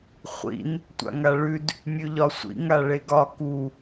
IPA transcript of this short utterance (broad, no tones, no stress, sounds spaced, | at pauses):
χʷ ḭ n | tʷ a̰ ŋ a ɭ ʉ d | mʲ ʉ ʎ ɒ sʷ ḭ ŋ a ɭ e ɡ ɒ k u